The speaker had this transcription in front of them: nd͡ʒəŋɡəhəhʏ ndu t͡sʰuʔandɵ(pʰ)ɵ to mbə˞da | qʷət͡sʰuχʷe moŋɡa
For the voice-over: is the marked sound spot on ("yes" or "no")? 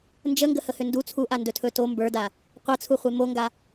no